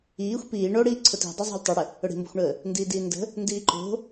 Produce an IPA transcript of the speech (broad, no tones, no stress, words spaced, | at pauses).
iːxʷ piː ɳoɽiː ǀʰʊti̤dˤʊzˤo̤lʲ tˤœɽə | ʊɽi̤mbo̤xʷɳəː | ndiːdiːndə̤ | ndiːǃo̤